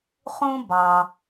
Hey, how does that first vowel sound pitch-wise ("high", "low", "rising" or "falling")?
high